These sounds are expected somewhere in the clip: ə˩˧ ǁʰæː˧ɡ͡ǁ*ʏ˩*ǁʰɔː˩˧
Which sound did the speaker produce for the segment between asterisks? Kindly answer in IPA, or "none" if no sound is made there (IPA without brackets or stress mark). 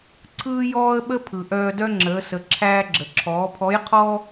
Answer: ə˩